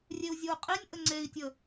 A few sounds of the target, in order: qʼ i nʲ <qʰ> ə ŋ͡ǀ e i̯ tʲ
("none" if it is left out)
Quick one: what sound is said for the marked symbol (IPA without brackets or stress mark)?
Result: ʔ